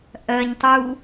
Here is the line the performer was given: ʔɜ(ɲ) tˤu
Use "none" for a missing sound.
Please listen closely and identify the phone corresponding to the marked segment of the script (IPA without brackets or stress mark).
ɲ